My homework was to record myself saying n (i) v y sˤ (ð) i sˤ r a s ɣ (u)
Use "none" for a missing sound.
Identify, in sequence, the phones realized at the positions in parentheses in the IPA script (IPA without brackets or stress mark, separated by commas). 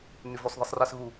y, ð, u